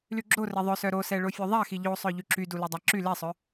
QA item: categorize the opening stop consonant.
click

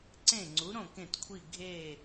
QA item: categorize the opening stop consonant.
click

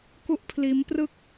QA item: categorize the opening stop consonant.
plain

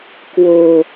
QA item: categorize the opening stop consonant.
plain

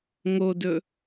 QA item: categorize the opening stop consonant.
plain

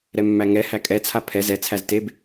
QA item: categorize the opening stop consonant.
ejective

